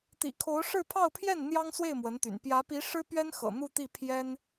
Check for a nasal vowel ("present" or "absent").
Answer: absent